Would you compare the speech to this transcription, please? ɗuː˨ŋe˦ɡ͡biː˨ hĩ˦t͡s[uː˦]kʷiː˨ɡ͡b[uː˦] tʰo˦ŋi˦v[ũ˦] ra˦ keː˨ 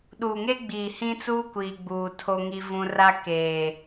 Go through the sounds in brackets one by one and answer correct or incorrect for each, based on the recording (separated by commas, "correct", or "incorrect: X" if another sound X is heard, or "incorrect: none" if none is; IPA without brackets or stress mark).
correct, incorrect: uː˨, correct